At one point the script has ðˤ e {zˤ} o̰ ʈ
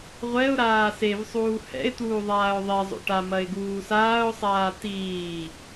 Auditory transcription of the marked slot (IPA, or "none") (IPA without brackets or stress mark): zˤ